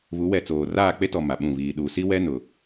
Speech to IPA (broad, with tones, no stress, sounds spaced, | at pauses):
β u˨˦ w ɛ˨ t͡s oː˨ r aː˦˨ k͡p e˦ t ɔ˨ m a˨ ɓ ũ˦˨ β iː˨ ɗ u˨ s i˦ w ɛ˦ n ʊ˨